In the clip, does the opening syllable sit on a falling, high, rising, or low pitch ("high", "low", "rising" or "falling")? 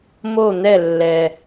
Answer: falling